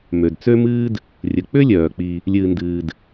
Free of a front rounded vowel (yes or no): no